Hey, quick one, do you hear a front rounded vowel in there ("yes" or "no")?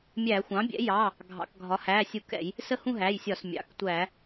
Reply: no